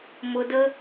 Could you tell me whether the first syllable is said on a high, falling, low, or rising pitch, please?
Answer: high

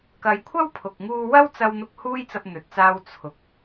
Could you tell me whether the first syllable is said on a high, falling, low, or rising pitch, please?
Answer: low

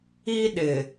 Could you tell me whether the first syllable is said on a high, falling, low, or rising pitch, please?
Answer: high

